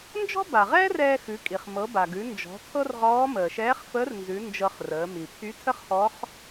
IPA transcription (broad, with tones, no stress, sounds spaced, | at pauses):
n d͡ʒ ɔ̤˥ b a˩ ʁ ɛː˥ r ɛː˧ x ʉ˩˧ kʼ i˩ χ m ɤ˩˧ b a˩ ɡ ʉ˩˧ n d͡ʒ ɔ̤˩˧ tʰ ɤ˥ r ʁ ɔː˧˥ m əː˩ ʃ ɛː˧˥ χ f əː˧˥ r n z ʉ˩˧ n d͡ʒ ɤ˧ χ r əː˩˧ m i˩ pʰ y˧˥ tʰ ə˥ χ h ɔ˧˥ χ